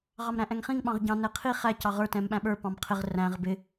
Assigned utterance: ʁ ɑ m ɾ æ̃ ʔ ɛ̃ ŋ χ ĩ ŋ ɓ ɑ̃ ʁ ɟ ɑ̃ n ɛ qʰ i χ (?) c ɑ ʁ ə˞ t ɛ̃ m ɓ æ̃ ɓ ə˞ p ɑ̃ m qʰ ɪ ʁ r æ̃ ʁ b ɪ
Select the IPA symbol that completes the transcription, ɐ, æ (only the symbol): æ